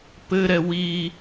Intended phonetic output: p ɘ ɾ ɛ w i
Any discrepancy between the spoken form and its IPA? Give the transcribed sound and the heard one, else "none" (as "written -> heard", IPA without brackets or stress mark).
none